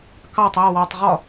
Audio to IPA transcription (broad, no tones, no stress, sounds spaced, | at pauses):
k ɑ tˤ æ w ɑ tˤ ʁ ɒ